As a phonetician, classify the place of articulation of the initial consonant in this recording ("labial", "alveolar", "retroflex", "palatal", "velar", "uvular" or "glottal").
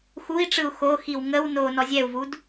velar